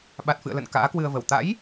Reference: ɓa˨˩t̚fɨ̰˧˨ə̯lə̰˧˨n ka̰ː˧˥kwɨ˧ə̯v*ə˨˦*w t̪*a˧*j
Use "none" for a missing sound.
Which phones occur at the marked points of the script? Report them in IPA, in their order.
ə˧˩, a̰˧˥

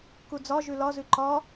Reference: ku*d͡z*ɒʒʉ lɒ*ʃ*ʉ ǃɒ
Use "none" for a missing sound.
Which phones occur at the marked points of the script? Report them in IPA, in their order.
d͡z, z

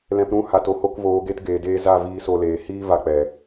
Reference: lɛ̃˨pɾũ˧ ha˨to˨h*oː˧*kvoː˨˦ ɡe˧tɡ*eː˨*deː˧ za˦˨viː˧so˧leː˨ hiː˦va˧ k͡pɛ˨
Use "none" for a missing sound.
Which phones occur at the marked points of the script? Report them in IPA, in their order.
o˧, eː˨

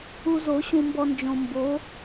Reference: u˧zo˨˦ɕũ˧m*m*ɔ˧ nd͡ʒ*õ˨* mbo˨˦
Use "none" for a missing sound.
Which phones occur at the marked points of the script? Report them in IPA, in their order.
b, õ˨

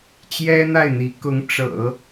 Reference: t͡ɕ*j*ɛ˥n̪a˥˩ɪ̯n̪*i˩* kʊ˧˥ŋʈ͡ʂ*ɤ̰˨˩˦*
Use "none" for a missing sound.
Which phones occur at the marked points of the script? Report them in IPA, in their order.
j, i˧˥, ɤ̰˨˩˦

